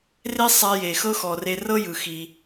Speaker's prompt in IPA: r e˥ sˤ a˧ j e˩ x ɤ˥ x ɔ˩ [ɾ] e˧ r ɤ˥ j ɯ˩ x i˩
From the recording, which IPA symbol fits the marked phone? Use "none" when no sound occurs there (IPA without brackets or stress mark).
r